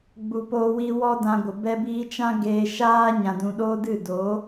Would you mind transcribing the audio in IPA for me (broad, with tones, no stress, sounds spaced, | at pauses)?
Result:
ɡ͡b u˨ p oː˧ w i˧ w ɔ˦ d ã˧ ɡʷ ə˨ b ɛ˧ b iː˧ t͡ʃ ã˦ ɡ eː˧ ʃ aː˦ ɲ ã˨ d ũ˨ ɗ oː˦ d ɨ˦˨ d o˨˦